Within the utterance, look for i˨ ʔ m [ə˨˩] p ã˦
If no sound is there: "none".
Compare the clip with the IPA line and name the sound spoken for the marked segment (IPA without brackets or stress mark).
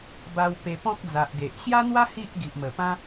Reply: ə˨˩